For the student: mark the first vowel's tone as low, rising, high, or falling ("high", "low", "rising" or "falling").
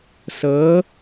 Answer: rising